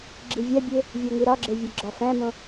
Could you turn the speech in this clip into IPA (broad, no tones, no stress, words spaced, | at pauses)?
ɡ͡ǁivʲæbʲe | vʲoŋiɾɒɡ͡ǁe vʲeɡ͡ǁɒfæ̃mõ